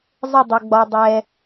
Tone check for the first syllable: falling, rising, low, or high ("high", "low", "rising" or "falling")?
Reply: falling